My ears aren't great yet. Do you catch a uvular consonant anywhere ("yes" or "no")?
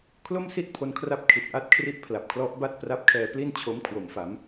no